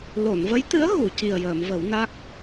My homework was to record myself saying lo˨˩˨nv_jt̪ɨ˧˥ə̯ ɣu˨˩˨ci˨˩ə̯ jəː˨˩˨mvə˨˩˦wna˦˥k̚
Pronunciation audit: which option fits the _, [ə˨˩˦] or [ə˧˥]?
ə˧˥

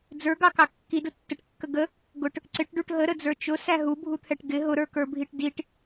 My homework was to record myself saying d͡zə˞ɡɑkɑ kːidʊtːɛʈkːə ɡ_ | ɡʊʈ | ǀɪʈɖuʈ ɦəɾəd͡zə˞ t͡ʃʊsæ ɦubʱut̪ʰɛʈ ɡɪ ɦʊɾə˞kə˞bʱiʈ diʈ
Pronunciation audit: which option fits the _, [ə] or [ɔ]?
ə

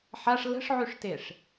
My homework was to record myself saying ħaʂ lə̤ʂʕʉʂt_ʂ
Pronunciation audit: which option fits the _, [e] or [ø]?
e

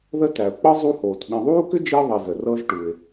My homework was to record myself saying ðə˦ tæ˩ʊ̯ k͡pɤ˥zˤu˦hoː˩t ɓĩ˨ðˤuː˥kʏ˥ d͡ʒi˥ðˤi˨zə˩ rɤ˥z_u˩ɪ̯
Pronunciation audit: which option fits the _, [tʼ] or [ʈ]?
ʈ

